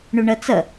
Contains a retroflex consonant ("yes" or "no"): yes